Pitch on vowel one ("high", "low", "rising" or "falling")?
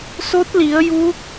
rising